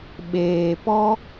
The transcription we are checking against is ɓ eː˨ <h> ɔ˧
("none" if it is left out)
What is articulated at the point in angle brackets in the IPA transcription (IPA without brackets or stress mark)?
p